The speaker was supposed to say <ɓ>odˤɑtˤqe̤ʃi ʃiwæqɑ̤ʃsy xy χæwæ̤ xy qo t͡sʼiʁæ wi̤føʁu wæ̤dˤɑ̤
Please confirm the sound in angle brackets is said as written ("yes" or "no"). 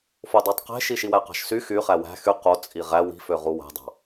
no